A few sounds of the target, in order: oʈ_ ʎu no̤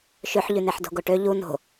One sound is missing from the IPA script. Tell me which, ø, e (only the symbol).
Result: ø